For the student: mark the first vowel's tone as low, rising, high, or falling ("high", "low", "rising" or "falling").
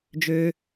low